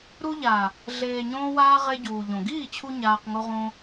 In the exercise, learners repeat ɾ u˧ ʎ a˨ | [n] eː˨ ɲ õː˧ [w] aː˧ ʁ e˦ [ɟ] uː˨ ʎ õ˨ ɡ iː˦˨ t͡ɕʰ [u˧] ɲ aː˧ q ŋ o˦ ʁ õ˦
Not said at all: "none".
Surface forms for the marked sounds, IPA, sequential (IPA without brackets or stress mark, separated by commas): ɮ, w, ɟ, u˧